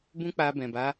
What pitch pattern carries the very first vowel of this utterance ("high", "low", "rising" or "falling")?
high